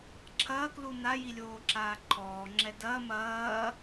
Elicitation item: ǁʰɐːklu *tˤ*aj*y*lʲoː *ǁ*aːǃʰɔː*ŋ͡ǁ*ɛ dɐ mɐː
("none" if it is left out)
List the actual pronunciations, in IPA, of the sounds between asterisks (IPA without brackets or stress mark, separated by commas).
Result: n, i, ǁ, ŋ͡ǁ